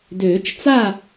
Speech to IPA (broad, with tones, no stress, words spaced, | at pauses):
døː˨˩˦t͡ʃt͡sa˥˨